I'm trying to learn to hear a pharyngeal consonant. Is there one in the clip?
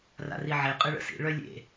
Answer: yes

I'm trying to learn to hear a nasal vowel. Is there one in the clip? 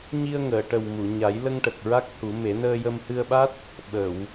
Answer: no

